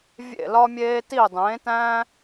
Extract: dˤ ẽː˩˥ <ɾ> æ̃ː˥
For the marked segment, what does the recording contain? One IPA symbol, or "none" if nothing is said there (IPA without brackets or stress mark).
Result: t